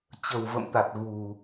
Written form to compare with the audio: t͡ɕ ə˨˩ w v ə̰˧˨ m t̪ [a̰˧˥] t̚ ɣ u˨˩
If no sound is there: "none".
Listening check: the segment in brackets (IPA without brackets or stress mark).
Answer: a˨˩